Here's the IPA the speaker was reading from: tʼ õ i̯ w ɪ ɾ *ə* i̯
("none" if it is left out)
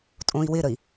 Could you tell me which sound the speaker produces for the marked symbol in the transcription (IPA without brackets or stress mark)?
ə